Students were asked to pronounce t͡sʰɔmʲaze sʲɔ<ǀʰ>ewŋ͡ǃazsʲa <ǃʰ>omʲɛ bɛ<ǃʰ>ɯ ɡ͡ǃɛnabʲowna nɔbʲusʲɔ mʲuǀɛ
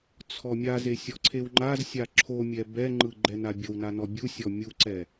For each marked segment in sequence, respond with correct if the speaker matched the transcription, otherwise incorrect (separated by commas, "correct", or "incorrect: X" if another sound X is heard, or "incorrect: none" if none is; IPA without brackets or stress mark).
correct, incorrect: ǁʰ, incorrect: ŋ͡ǃ